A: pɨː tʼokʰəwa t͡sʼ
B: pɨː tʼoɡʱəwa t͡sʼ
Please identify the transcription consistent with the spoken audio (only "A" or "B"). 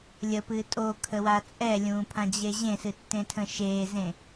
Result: A